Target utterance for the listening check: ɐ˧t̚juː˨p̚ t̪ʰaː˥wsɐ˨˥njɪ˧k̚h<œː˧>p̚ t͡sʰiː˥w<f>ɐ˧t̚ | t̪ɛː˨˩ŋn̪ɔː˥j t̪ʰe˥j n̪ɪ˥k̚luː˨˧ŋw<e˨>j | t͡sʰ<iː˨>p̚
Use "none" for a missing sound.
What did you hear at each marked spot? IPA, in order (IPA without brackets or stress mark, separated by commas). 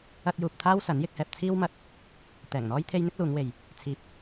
ɛː˧, m, e˨, iː˨